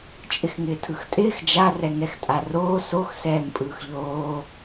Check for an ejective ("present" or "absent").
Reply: present